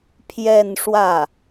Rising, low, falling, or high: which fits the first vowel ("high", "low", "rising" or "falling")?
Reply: falling